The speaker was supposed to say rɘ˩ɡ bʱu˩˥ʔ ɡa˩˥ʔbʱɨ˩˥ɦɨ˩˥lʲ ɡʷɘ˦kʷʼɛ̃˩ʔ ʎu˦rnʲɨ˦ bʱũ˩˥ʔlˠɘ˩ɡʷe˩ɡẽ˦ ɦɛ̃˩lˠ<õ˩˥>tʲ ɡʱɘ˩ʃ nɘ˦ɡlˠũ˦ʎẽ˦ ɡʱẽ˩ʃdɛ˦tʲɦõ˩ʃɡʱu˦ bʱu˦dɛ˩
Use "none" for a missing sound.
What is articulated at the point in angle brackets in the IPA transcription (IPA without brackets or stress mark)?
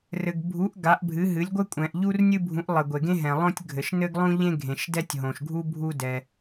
õ˦